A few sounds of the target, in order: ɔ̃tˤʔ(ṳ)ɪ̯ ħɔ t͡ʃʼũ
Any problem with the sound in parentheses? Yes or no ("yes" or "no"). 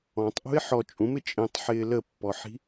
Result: no